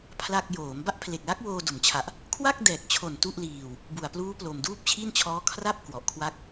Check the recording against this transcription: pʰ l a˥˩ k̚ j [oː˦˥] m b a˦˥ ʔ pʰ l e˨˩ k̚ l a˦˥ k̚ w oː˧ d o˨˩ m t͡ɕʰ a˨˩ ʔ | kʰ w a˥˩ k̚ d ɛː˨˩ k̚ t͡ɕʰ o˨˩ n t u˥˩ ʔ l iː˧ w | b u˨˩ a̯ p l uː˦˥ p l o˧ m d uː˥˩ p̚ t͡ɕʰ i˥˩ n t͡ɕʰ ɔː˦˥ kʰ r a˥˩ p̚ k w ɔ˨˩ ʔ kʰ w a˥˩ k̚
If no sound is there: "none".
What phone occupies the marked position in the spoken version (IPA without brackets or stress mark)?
oː˩˦